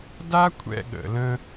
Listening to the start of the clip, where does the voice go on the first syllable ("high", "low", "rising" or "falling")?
high